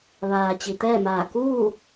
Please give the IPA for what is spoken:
ʋaː˩ t͡ɕi˩t̪ɛː˥˨maː˧˩ kuː˥˨

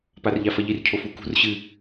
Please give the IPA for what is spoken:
parʎafɐʎir cʰofukṳr ɕɨ

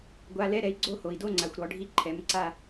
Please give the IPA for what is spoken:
ɡʷa˧˥˧ lɛ˧˥˧ɾɛ˨˥i̯ ɡ͡ǀo˥˧ho˨i̯ do˥˧ŋ͡ǀa˨xʷ ɾɔ˨˥ɖʱi˥˧ ǃʰɛ˨˥mǀa˥˧

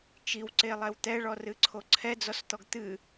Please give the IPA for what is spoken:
t͡ʃiwǀelˠɛw t̪ɛɭɔrɨǀʰo ǀʰɛd͡zɔst̪ɔɡ t̪ɨ

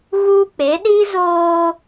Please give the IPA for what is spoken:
ɣuː˦k͡pe˨˦ ɗi˦ zoː˦

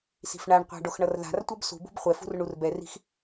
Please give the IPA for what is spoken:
si̤fɳaɳqʷa̤ ɖoxɳʌrða̤rtʷʌb sṳbṳb χʷɛfṳr ɳurbɛri̤x

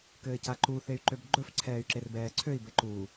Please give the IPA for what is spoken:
kɘːcaǃu θey̯ǃøbɡ͡ǃɵf ǀʰɛːy̯ǁerbɛːǀʰøi̯ bɘǃu

